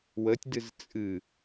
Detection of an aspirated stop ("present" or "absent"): absent